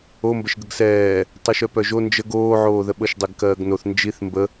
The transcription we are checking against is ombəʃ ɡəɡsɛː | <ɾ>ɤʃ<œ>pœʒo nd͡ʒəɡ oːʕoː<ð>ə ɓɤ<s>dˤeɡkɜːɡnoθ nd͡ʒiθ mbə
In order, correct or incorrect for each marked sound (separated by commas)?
incorrect, correct, correct, incorrect